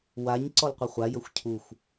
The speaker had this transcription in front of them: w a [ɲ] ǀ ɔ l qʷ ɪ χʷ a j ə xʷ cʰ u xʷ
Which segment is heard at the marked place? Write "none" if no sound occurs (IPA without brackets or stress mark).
ɲ